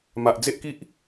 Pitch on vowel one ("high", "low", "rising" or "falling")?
low